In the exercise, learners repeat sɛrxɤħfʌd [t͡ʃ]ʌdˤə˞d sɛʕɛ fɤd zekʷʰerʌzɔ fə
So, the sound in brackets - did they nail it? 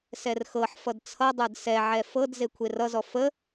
no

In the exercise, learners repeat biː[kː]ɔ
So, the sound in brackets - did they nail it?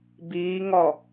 no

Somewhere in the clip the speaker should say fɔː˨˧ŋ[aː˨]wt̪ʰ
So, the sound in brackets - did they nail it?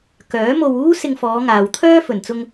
yes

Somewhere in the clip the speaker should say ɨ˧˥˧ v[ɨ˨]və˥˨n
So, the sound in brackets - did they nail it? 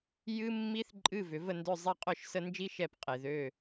no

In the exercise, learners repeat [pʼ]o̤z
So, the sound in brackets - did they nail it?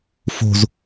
no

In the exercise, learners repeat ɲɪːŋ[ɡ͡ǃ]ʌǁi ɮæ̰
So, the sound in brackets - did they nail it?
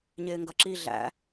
no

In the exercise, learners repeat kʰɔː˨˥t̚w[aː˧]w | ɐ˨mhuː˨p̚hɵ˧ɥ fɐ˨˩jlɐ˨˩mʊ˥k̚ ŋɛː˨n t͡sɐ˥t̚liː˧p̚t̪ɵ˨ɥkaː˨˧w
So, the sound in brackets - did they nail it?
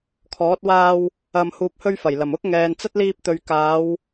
yes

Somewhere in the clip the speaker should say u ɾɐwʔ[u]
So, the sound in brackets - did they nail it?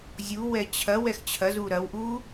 yes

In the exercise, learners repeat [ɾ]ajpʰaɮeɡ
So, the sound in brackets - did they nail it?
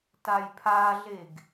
no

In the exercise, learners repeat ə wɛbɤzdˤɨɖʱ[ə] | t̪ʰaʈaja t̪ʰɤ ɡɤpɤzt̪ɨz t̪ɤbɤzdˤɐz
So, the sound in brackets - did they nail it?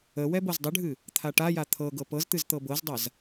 no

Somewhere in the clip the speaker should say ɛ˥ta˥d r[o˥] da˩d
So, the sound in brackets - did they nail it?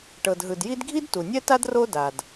yes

